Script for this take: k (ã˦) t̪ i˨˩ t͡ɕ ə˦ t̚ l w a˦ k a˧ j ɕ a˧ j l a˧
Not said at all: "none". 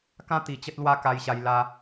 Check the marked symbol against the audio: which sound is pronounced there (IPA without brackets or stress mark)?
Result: ã˦